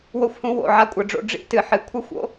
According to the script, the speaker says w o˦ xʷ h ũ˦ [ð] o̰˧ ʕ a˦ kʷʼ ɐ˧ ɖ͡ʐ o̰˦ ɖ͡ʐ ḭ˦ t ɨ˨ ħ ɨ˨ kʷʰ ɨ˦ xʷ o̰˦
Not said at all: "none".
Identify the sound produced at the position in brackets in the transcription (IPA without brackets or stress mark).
w